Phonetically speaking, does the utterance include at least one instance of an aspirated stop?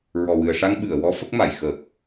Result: no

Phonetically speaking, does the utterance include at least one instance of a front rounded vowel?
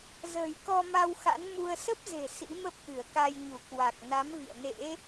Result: no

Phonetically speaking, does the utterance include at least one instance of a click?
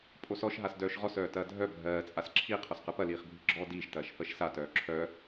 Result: yes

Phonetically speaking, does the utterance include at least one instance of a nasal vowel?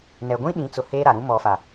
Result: yes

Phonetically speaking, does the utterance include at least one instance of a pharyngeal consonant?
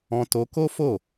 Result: no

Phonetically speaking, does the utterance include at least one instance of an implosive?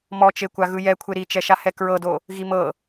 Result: no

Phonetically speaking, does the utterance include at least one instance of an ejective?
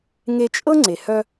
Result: yes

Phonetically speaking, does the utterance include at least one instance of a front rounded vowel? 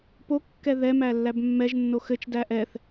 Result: no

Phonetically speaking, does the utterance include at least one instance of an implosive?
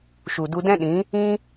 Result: yes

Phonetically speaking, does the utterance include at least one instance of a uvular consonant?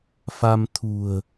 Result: no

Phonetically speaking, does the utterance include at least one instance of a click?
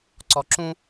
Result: yes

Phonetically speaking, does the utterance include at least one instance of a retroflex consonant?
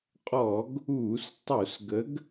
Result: no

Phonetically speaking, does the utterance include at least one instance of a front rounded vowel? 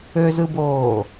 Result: yes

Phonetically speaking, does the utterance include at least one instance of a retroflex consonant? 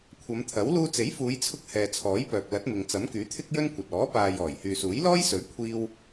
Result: no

